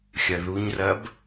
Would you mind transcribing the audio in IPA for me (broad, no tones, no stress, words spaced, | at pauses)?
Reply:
xʲɐðuɲrɐb